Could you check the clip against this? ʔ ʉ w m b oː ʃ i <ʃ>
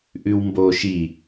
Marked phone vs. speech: incorrect: none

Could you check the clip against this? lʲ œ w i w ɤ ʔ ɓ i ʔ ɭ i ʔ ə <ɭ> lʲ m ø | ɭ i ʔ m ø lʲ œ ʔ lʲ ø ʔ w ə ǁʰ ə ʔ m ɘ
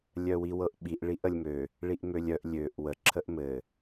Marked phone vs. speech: incorrect: none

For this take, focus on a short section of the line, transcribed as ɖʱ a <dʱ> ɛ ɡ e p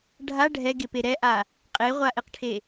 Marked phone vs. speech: incorrect: ɖʱ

